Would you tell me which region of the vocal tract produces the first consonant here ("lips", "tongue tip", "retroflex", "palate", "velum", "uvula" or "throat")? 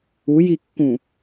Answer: palate